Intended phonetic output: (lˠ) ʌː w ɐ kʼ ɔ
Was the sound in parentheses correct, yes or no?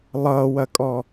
yes